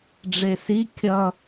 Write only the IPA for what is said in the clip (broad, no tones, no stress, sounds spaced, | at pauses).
ɖ͡ʐ e s i kʲ ʌ